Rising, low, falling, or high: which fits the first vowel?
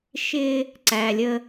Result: low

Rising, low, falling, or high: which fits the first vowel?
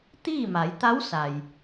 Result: falling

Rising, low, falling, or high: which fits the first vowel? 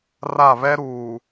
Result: falling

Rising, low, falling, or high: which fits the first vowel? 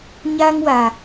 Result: high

